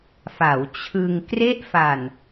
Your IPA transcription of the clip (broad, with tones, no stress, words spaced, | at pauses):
fa˩˦wt͡ɕʰɯ˧ŋ kre˥˩ʔfa˨˩n